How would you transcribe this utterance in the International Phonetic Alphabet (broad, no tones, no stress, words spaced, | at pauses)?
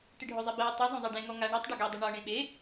ʈɪɖʱozˤebɛu̯ tˤɛ zˤõzˤɛɖẽ ŋɔŋa ɳetˤ ɖuɡɛdˤɪ ɳɔ ɳẽɓe